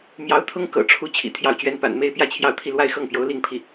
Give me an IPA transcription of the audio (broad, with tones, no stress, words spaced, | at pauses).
mjɑ˧˥ʊ̯t̪ʰʊ˥ŋ kɤ̰˨˩ʈ͡ʂʰu˧˥ t͡ɕʰḭ˨˩ t̪ʰjɑ˥˩ʊ̯t͡ɕɥɛ˥n pa̰˨˩nme˥˧ɪ̯ pjä˥˧t͡ɕʰjɑ˥˧ʊ̯t̪ʰi˥˧ lwa˥˧ɪ̯xɤ˥˩ŋpjo˧˥ʊ̯ li˥˧ŋpʰi˥˩